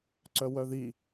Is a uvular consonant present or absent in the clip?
absent